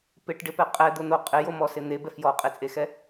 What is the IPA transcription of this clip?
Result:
p ɪ ʈ ɖ ɪ p ɛ qʼ ɛ d̪ ʊ n̪ o qʼ ɪ j o m ɔ s ɪ n̪ e b ɛ f j ɔ qʼ e t͡sʼ e x ɛ

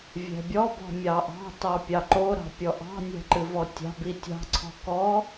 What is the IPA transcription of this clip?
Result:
vʲ ɛ̤ bʲ ɔ b ɔ̤ mʲ ɑ ʔ ɑ̤ t ɑ pʲ ɑ ǃ o ɾ ɑ̤ pʲ ɔ ʔ ɑ̤ nʲ ɛ̤ ǃ ɨ v ɔ tʲ ɑ̤ b i tʲ ɑ̤ ǀʰ ɔ̤ k ɔ

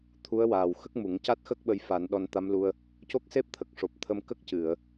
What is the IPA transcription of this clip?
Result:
t̪ʰ u˧˥ ə̯ w aː˨˩ w x ə˦˥ k̚ m u˨˩˦ ŋ c a˦˥ t̚ x ə˦˥ k̚ ɓ ə˧ j f a˨˩˦ n ɗ ɔ˧ n t̪ a˧˥ m l u˧ ə̯ | c o˦˥ k̚ s e˦˥ p̚ t̪ʰ ə˨˩ k̚ ʂ o˨˩ p̚ t̪ʰ ə˧ m k ə˦˥ k̚ c ɨ˨˩˨ ə̯

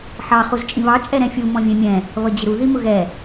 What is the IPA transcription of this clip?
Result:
ħ ɑ χ u z t͡ʃʼ ĩ β ɑ t͡ʃʼ ɛ ɾ ɛ̃ fʲ u m ɔ̃ vʲ ɛ̃ mʲ ɛ̃ | β ʌ d͡ʑ ɪ ɾ u ð i m ʊ ɣ ɛ

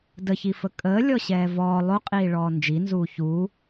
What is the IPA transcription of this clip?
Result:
d ə ç i f ə kʼ əː lʲ ɔ ɕ ɛː v ɔː lˠ o qʼ iː ɭ ɔː n d͡ʒ i n z uː ç uː

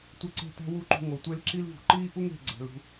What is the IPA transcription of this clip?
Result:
tʷ e˦ ǀ e̤˦ t æ̤˦ w u˦ ǃ ṳ˧ ŋ o˨ tʷ e˦ l ǁ i˦ l v ṳ˨ ǃ iː˦ ʔ u˦ ŋ e̤˦˨ ɡ͡ǀ æ̤˨ l ṳ˦˨

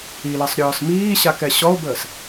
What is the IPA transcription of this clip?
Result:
i l ɐ sˤ ɾʲ ɔː s m iː ɕ a k ɛ ɕ ɔ o̯ b əː s

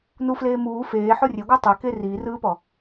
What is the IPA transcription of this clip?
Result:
n u f l eː m uː f eː ħ o rʲ e ɡʷ ɯ tˤ ɛ k e r iː r ɯː p ɔ

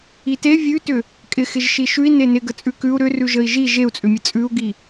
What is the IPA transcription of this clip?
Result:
i t e vʲ ʉ t ʏ | kʼ ɪ x ɪ ʒ ʃ i ʃ ʉ i̯ n e n ɪ ɡ ə t͡sʼ ʉ k ʉ u̯ ɾ ʏ r ʉ ʒ ə i̯ ʒ i ʒ e u̯ t͡sʼ ʏ mʲ ə t͡sʼ ʉ u̯ ɡ i

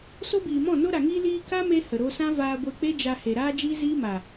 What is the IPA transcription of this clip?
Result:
s o˦ b iː˨ m ɔ̃˦˨ n o˧ ɾ a˨ ŋ iː˧ l iː˧ k a˦ m e˧ h ə˨ ɾ o˧ s ã˦ v aː˧ ɡʷ e˧ k͡p e˦ d͡ʒ a˧ h e˨ ɾ aː˦ d͡ʒ iː˦ z iː˦ m a˨

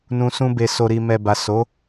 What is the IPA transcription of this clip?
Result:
n ũ˨ s ũ˧ b e˨ s o˨ ɾ i˨ m ɛ˨ b a˨ s o˨˦

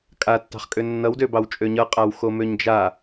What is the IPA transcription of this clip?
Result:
kʼ a tː ɑ̤ χ kʼ ø nː ʌ w d ø b ɑ w t͡ʃʼ ø ɲ ʌ qʼ a w x o m ø ɲ d͡ʒ a

